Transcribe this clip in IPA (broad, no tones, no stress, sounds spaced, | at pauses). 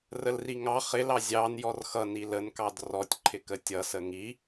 r ə l r i ŋ ɑ χ ɪ l ɑ zʲ ɑ n j ɔ r x ʌ n i l ə n k ɑ d r ɔ tʲ ǃʰ ɪ k ə tʲ ʌ s ə ŋ i